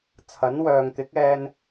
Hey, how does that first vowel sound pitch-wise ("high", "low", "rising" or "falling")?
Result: rising